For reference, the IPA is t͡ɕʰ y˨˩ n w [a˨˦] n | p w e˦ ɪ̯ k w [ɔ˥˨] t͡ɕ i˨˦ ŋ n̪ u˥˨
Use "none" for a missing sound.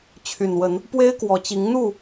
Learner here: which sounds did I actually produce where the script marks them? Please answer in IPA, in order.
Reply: ə˨˦, ɔ˨˩

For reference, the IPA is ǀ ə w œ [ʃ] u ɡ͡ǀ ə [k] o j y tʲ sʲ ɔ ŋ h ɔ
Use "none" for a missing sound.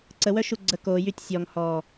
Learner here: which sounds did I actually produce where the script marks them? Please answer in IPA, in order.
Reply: ʃ, k

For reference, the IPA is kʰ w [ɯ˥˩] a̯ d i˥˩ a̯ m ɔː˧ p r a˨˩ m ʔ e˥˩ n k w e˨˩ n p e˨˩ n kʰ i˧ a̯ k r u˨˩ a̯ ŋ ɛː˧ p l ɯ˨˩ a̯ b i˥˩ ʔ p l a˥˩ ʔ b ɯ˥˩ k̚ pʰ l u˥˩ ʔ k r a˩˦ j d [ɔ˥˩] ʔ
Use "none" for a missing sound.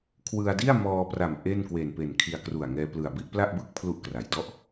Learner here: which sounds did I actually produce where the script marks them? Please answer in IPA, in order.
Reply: ɯ˧, ɔ˥˩

